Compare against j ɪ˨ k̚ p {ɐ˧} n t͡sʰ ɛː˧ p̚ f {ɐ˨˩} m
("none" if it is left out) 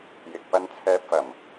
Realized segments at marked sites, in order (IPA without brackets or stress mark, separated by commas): ɐ˧, ɐ˨˩